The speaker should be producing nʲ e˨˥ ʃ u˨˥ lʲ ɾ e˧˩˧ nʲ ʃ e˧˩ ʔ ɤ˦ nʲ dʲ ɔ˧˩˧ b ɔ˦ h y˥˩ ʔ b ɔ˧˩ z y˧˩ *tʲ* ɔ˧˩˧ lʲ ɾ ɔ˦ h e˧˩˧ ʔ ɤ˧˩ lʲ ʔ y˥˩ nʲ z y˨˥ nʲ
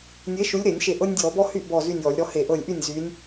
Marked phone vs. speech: incorrect: nʲ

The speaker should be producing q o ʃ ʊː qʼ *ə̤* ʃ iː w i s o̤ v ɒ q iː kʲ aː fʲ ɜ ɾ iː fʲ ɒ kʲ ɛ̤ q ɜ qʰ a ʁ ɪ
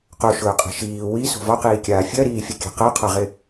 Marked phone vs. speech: incorrect: ɛ̤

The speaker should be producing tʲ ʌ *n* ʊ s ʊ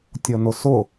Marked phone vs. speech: correct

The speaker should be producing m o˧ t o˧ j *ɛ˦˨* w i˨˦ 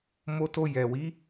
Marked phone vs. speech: incorrect: ɛ˨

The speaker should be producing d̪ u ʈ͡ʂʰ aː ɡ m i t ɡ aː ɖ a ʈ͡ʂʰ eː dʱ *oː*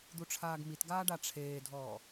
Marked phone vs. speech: incorrect: ɔː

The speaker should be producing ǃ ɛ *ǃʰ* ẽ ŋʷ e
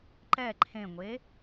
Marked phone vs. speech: correct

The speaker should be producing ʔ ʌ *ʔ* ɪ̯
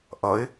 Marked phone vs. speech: incorrect: none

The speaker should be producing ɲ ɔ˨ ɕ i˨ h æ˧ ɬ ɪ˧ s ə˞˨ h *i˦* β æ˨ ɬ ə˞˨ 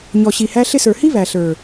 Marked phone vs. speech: correct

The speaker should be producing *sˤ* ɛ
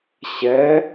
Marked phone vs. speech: incorrect: ɕ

